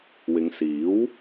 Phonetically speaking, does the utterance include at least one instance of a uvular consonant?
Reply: no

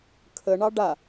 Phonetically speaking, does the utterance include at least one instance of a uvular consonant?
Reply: no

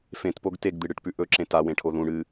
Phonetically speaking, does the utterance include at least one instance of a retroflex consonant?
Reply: yes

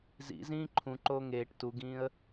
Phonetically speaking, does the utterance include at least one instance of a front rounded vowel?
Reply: no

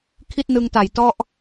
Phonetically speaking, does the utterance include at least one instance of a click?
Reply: no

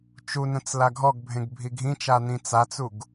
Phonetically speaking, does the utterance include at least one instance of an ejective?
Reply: no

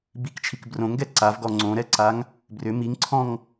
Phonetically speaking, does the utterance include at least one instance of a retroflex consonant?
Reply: no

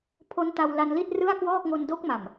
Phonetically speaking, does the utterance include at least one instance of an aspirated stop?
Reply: yes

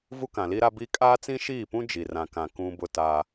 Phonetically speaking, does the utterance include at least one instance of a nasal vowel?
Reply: yes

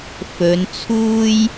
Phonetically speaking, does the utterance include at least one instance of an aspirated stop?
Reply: yes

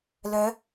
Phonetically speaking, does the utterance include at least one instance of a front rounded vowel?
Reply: yes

